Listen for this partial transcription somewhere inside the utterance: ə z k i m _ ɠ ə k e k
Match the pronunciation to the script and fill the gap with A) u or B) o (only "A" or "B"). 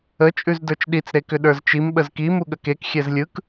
A